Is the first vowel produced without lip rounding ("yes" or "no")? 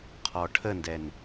no